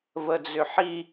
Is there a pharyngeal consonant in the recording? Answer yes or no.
yes